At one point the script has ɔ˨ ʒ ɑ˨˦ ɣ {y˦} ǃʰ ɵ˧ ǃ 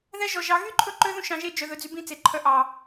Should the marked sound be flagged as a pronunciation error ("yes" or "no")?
no